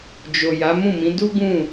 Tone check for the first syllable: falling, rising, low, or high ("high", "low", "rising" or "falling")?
low